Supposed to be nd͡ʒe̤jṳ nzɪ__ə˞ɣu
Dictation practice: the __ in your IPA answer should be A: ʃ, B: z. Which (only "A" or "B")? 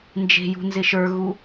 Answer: A